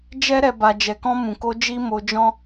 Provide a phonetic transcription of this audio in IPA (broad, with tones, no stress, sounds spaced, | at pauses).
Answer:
d͡ʒ ɛ˦ ɾ ɛ˧ b a˧ d͡ʒ ɛ˧ k ɔ̃˧ m ũ˨ k o˧ d͡ʒ i˦ m o˧ d͡ʒ ɔ̃˦